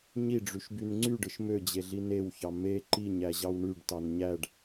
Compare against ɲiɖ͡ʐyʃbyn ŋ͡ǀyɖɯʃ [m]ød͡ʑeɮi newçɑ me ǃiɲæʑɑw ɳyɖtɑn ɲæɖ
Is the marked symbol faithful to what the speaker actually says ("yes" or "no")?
yes